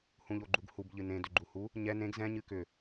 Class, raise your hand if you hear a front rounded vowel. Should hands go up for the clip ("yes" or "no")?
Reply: yes